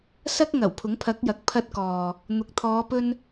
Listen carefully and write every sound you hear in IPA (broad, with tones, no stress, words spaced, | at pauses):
sɐ˥k̚ ŋɐ˨˩w pʰʊ˨˥ŋpʰɐ˨˥k̚jɐ˨k̚ pʰɐ˧t̚kɔː˨ | n̪ʊ˨k̚t̪ʰɔː˨˧pɵ˧n